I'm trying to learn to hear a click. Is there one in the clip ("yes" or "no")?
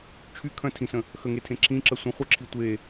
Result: yes